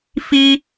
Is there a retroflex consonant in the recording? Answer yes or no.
no